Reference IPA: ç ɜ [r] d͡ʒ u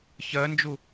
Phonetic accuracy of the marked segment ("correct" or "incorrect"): incorrect